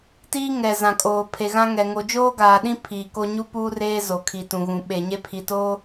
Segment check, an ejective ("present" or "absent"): present